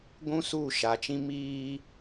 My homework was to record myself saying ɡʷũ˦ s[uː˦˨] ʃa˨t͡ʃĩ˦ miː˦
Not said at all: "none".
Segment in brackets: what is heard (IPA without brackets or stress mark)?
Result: uː˦˨